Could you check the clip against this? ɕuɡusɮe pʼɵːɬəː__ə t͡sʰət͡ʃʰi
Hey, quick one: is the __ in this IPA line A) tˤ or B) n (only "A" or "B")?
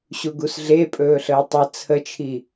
A